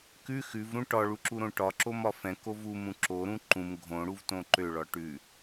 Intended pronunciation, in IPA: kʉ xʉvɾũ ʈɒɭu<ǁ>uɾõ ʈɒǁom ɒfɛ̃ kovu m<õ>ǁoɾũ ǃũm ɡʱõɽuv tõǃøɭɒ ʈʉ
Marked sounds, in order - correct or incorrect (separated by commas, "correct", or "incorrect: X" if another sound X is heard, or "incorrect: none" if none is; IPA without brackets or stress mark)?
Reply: correct, incorrect: ũ